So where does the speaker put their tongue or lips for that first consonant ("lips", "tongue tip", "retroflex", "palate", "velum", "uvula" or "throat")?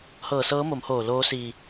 throat